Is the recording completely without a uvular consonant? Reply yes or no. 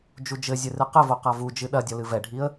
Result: no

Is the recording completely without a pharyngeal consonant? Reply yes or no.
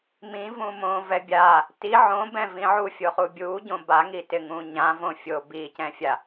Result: no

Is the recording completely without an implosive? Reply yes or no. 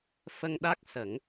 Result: no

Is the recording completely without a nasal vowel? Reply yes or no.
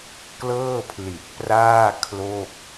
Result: yes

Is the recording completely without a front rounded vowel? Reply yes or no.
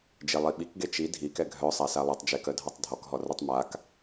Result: no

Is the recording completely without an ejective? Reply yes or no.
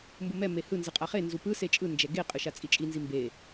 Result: no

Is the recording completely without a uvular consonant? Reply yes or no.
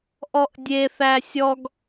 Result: yes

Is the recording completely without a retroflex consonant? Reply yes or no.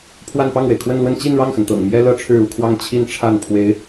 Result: no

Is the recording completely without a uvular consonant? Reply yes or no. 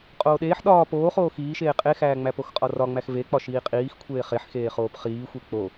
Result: no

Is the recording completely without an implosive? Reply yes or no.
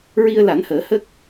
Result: yes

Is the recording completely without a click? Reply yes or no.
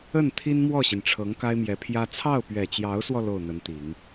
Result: yes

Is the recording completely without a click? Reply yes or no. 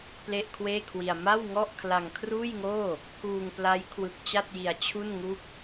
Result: yes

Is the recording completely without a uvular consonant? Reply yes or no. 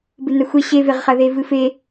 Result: no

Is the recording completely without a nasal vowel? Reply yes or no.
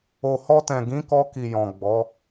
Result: no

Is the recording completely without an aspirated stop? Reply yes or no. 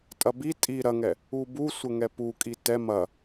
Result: yes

